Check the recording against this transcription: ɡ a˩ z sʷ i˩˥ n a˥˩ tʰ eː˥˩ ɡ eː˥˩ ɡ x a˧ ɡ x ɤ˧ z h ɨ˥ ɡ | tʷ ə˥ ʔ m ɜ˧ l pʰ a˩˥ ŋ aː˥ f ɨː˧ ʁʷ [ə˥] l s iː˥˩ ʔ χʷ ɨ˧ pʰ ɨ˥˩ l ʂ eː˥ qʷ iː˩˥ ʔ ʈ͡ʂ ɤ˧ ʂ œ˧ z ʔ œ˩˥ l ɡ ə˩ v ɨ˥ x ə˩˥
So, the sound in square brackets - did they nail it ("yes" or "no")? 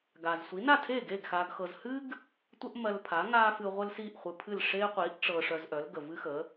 yes